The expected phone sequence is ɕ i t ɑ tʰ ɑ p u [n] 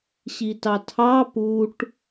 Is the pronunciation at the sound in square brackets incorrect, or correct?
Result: incorrect